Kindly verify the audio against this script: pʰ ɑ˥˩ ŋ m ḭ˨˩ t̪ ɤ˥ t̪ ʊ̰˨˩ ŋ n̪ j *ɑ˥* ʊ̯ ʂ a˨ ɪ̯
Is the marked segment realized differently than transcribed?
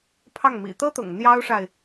no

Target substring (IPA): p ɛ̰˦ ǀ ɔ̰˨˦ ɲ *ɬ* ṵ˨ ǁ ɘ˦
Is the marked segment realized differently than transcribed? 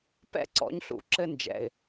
no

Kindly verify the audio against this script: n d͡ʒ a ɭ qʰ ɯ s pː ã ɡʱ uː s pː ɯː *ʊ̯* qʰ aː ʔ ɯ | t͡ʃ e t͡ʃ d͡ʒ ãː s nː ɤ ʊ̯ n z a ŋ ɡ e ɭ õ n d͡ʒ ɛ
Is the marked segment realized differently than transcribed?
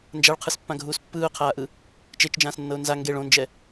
no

